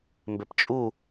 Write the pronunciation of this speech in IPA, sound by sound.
mbept͡ʃʼu

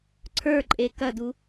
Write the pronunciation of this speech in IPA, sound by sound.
ǀʰə˞ǃʼe kɐdu

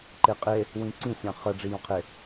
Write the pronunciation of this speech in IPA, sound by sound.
ǃeqʼe | wĩǀĩ sʲɑ̃χə ɖ͡ʐijɔ̃qʰe

